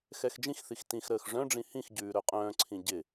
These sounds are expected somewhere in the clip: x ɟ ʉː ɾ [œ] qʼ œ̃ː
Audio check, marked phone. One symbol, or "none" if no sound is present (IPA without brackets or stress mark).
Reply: œ